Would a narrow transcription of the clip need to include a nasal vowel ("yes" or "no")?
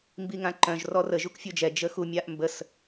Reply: yes